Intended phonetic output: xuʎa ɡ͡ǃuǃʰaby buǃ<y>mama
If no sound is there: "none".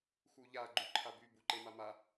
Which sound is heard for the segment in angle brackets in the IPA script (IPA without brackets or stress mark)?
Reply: e